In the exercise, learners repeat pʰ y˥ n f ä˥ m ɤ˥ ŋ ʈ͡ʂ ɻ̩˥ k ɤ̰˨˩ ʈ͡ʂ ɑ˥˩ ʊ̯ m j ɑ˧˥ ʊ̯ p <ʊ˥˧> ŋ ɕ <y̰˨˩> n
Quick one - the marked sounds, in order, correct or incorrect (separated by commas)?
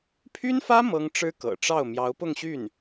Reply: correct, incorrect